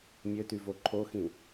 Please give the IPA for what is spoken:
mʲ ø t y v o ǃʰ o x ĩ

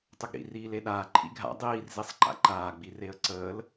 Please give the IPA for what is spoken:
tˤ ʊ ɡ ɾ ḭ r iː l e ɗ aː ǃʰ ḭ ɡʱ a̰ dˤ iː r z i sˤ ǃ a̰ ǃ aː ɡ͡b i r e ə̯ ǀ əː l

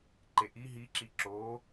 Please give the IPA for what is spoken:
ǃ e ʔ i ɦ i ǁ i ǁ oː

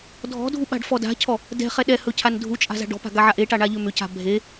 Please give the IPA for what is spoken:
dʱ ɔ̤ dʱ u ɓ a̤ ɖ f ɔ d a̤ cʰ ɔ | d ɛ̤ χ ɛ ɗ ɛ h ɵ cʰ a n dʱ u t͡ʃʼ a̤ z a̤ ɖ ɔ̤ p a̤ ɡ a ʕ a ʔ e ʈ a ɳ a ʎ ʏ m ʏ c a̤ bʱ e

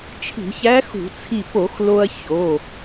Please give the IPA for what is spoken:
t͡ʃʰ i̤˧˩˧ ç æ˧˥ x ṳ˧˩˧ t͡sʰ i˧˩ p o˧˩˧ x l o˧ ɐ̯ ç o˩˧˩

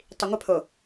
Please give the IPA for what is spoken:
tˤ i ŋʷ ɪ pʰ o

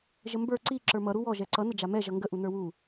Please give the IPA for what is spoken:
ʒ ə m b ə˞ ǀ i ǁ ə˞ m ʌ ɾ u w ɔ ʒ ɛ ǀ ʌ n ə d͡ʒ a m ɛ ʒ ʌ ŋ ɡ ə ʔ u n ə˞ w u

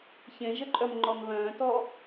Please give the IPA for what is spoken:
ç ẽ ʒ ə ǃʼ œ m ŋ͡ǃ ɔ n β œ̃ː t ɔ

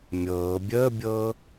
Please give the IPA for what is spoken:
mʲ ɤː bʲ əː bʲ ɤː

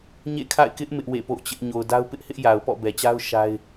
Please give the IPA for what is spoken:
ɲ ḛ˦˨ kʰ a̰˦˨ ɪ̯ k ɪ˦ ʔ m ɪ˦ ʔ w ḛ˦˨ p o̰˦˨ ʊ̯ t͡ɕ ɪ˦ ʔ ɲ o˨ ʊ̯ d a˦ ʊ̯ p ɪ˦ ʔ h ɪ˦ ʔ j a˨ ʊ̯ p ɔ̰˦˨ b ɛ˨ t͡ɕ a˦ ʊ̯ ʃ a˦ ɪ̯

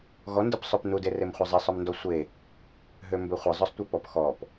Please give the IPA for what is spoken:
ɣ ɔ n d ə p sˤ ø p n u d e r e m χʷ ɐ zˤ e sˤ œ m n d ɔ sʷ e | ɦ ø m b ø χʷ ə zˤ œ sˤ tʷ œ p ɔ p x ɔ p

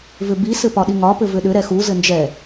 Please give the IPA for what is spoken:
v ʏ b i s ɘ p ɒ ɗ i ŋ ɒ p ɘ v ʏ ɗ ʏ ɾ ɛ x u z ɘ n d͡ʒ ɛ

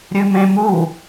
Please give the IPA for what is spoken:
ɾʲ ɨ m ẽ m u

